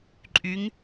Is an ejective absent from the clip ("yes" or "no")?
no